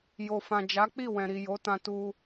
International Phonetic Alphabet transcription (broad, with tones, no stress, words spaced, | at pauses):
jo˨fã˨ d͡ʒa˨˦k͡pi˦˨ wɛ̃˨ɾi˨jo˨˦tã˧ tu˧